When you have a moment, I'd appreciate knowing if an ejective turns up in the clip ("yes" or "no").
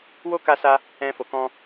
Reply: no